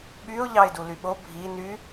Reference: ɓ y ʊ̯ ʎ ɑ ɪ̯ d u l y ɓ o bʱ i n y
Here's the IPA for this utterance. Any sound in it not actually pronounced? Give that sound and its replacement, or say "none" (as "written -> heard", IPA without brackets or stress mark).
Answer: none